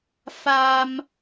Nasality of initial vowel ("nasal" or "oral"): oral